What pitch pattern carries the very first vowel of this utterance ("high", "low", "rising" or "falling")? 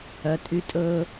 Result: low